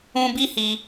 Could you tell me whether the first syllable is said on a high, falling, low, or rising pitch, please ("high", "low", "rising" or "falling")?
high